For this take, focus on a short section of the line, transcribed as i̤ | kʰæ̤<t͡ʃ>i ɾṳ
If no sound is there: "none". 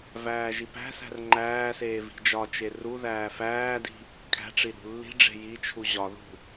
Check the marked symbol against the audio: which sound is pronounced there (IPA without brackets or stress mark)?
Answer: ʈ͡ʂ